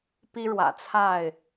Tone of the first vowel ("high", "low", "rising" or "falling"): high